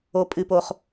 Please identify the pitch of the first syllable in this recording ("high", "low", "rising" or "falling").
low